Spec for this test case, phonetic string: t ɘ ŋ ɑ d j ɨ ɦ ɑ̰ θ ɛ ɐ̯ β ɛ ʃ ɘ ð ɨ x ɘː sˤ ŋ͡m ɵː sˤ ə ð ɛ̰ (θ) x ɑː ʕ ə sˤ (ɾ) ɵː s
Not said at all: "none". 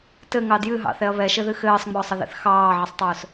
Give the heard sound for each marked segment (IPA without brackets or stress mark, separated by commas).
θ, tˤ